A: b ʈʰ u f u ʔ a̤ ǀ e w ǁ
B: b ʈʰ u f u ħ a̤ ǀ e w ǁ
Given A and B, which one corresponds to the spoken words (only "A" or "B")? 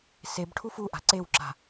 A